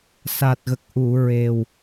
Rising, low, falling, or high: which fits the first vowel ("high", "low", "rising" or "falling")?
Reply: low